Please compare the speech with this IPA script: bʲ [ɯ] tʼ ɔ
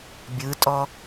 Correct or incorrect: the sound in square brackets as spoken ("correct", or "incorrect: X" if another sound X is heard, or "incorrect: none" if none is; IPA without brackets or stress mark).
correct